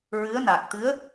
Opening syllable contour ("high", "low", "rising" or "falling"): rising